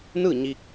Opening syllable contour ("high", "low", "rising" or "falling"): falling